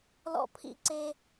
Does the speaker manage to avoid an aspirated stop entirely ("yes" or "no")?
no